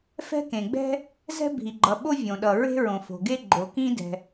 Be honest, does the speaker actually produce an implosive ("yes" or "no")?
yes